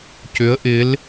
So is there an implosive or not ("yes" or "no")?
no